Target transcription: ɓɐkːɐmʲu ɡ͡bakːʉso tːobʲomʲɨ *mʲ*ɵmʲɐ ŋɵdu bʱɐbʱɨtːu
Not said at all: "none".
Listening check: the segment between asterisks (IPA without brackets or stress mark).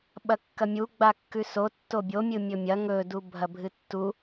mʲ